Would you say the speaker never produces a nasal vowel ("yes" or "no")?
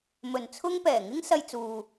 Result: yes